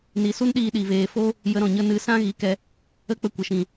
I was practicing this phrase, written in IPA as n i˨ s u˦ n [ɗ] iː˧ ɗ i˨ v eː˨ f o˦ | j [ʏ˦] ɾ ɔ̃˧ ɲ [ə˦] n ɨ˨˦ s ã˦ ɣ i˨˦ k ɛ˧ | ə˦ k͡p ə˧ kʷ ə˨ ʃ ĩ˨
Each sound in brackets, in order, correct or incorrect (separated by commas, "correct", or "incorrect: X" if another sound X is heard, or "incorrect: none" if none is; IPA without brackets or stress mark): correct, incorrect: ə˦, correct